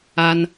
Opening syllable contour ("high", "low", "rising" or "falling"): high